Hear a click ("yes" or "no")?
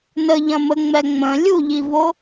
no